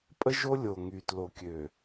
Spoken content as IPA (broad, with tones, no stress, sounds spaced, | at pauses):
pʼ ə˦ ʒ o˦ lʲ o˨ ŋ y˨ t l o˨ kʲ ø˨